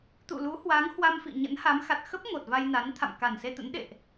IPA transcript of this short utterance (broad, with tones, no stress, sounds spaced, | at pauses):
t̪ ṵ˧˨ l u˨˦ h w a˨˦ ŋ h w a˧ m f ḭ˧˨ ɲ ə̰˧˥ n h a˨˦ m x a˨˩ t̚ x ə˦˥ p̚ ŋ o˨˩ t̚ v a˧ j n a˨˦ n t̪ʰ a̰˧˨ m k a˨˩ n s e˧ t̪ ə̰˧˥ n ɗ ḛ˧˨ ʔ